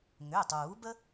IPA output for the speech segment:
ŋ ʏː˩˧˩ tˤ uː˨˩˦ b ə˦

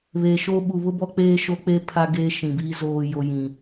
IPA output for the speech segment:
β e˨ ʃ o˦ ɓ u˨ β ʊ˦ b ɔ˦ k͡p eː˦ ʃ o˦ k͡p e˦ pʰ a˦ ɡ eː˦ ʃ ĩ˨ b iː˦ z oː˨ j o˨ j ĩ˨

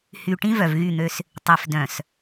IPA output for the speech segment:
h y˨ ʈ ĩ˦ v œ˨ v ɣ y˦˨ n̪ ø˦ s | tˤ i˨ f d œ̃˨ s

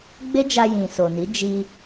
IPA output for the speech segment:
ɡ͡b e˦ d͡ʒ a˧ j ĩ˨ s o˨ n i˨˦ d͡ʒ i˧

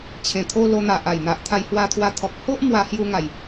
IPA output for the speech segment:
t͡ɕʰ ẽ˨˩ t̪ʰ o˧ l o˧ n̪ a˨ ʔ a˨˩ j n̪ a˨ ʔ t̪ʰ a˧ j h w a˧ t̪ʰ w a˧ t̪ʰ ɔ˨ k̚ h o˦ ʔ m w a˧ h j u˧ ŋ a˨˩ j

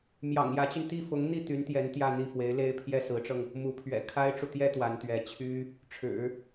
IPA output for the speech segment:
m j ɑ̰˨˩ ŋ j ä˧˥ t͡ɕ y˧ n t̪ i˥˩ f ʊ˧˥ ŋ n̪ i˥˩ t̪ y˧˥ n t̪ j ɛ˧˥ n t̪ j ä˥˧ n̪ i˥˩ f w e˧˥ ɪ̯ l e˥ ɪ̯ pʰ j ɛ˥˩ s ɹ̩˧˥ ʈ͡ʂ ɤ˧ ŋ | m u˧˥ pʰ ɥ ɛ̰˨˩ kʰ a˥ ɪ̯ ʈ͡ʂ u˨ t̪ j ɛ˥ t̪ w a˧˥ n t̪ ɥ ɛ˧˥ t͡ɕʰ y˥ | ʈ͡ʂʰ ɻ̩˨˩˦

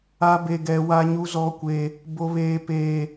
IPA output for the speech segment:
a˦ b e˦ ɡ ɛ˦ w a˦ ɲ u˦ z ɔ˦ kʷ e˦ | b o˦ β eː˦ p eː˦

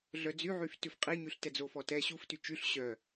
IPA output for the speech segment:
ɮ œ d͡z y ʕ y f t ʉ f qʼ i ɲ y ɬ t ɛ d͡z o f ɔ t ɛ ɕ u f t y t͡ʃ y ɬ ɕ œ

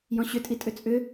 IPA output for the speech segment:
j ɔ̃ ɕ ʏ tʼ i tʼ ʏ t͡sʼ ʏ

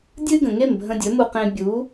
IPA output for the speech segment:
dʲ ɨ˥ ɡ ə̃˩ ŋ e˥˩ m bʱ ə̃˧ dʲ ɵ˩˥ m u˧ q ẽ˧ bʲ u˩˥

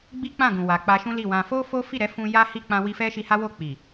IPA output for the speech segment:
ɡ͡b i˦ k͡p ã˦˨ ɡ ũ˨ w a˨ k͡p a˧ ʃ ũ˦ l i˦˨ w ã˧ f o˦ f o˦ f i˦˨ ɾ ɛ˨˦ f ũ˧ j a˦ h i˦˨ k͡p ã˧ w i˧ f ɛ˦ ʃ i˧ h a˦ w o˦˨ k͡p i˨

